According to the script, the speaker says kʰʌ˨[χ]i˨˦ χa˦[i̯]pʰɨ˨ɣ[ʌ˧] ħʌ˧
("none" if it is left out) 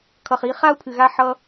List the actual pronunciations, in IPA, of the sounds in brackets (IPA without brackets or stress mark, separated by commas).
χ, u̯, a˧